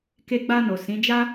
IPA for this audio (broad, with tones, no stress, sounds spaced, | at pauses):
k e˧ ɡ͡b a˧ n o˨ s ĩ˨˦ d͡ʒ a˦